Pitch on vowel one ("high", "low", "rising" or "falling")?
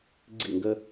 falling